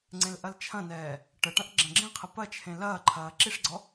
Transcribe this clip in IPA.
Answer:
ŋ͡ǀ ẽ l ʔ ɐ l t͡ʃʰ ɐ̃ n ɛː | ʈ ə ʈ ɐ̃ ʔ ɡ͡ǁ ɐ̃ ɡ͡ǁ ẽ qʰ ɛ p ɐ t͡ʃʰ ẽ l ɐː ǃʰ ɐː ǁ i ʂ ɡ͡ǀ ɔ

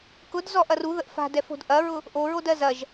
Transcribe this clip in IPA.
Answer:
k ʊ d z ɔ ʔ ɐ r u ð ə ʔ f a̤ d ɛ f o̤ d ʔ ɐ ɹ ʊ | ʔ o ɹ o d ɜ z ɐ ʒ

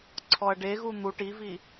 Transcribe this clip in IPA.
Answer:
ǀʰ ɔ ɐ̯ ɖ e ɣ u n̪ u ʈ i v i

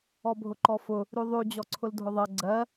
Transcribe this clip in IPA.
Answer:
ɔ bʱ ʊ ǃ ɔ f ʊ | ɾ ʉ ðˤ ʉ d͡ʑ ɔ ǀʰ ʊ l dʱ ʊ ðˤ ɜ ɡ͡ǀ ɜ

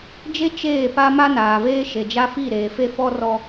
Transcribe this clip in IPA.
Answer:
d͡ʒ e˦ t͡ʃ eː˦˨ p a˦ m a˦ n aː˨ v eː˦ ʃ e˨ d͡ʒ a˦ f i˦˨ ɾ eː˨ f e˦ f ɔ˦ r ɔ˦

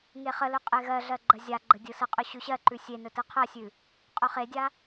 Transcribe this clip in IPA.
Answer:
ŋ e χ ə l ɵ qʼ e ɣ ɜ ɮ ɜ ɡ͡ǃ ɜ zʲ a ɡ͡ǃ ə dʲ ɯ s ə qʼ ɵ ɕ ʉ ɕ ɜ ǃ ʉ sʲ e n ɵ t ɯ qʰ ɜ sʲ ʉ | qʼ ɵ χ e dʲ a

